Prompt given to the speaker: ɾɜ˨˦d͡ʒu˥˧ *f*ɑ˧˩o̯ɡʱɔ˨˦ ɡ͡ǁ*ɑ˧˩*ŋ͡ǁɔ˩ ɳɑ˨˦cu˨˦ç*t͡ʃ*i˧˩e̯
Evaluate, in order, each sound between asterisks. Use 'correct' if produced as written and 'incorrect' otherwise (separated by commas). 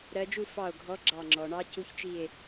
correct, correct, correct